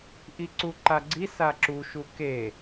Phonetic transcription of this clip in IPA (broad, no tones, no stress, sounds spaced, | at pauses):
ʔ i ǀ u ǃ a ɡ͡ǀ i s a ǁ u ʃ u k e